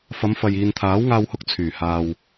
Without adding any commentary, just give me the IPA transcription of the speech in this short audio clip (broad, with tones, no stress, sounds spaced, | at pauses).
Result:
f ɐ˨˧ m f ɐ˨ j iː˨ n t̪ʰ aː˨˥ w ŋ aː˧ w h ʊ˧ k̚ t͡sʰ yː˨˩ h aː˨ w